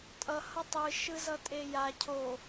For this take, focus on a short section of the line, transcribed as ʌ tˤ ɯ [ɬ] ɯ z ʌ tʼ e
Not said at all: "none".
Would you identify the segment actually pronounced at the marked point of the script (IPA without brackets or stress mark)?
ʃ